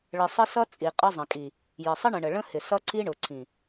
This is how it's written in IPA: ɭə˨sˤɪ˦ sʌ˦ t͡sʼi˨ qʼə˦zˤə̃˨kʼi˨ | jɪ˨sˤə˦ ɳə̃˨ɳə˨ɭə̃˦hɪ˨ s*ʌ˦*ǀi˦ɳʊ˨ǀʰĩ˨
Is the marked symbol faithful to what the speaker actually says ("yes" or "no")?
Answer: yes